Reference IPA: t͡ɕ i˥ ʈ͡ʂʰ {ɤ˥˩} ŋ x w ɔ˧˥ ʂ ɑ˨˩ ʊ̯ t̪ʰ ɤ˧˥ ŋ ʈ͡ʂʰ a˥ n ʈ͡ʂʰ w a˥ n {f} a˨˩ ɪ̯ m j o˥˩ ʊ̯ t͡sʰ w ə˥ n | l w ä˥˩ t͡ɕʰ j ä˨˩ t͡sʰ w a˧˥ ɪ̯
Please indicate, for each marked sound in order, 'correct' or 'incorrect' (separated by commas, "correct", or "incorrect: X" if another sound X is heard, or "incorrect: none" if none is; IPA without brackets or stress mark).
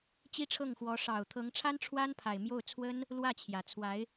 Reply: correct, incorrect: pʰ